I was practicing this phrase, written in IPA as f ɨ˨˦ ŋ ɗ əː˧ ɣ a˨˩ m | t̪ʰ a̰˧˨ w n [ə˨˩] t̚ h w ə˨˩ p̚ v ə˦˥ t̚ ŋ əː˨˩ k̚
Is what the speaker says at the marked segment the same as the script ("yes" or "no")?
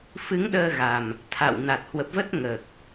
no